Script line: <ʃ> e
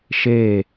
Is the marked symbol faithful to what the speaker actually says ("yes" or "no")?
yes